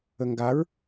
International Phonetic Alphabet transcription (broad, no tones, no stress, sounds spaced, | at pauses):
ə ŋ ɡ a ɹ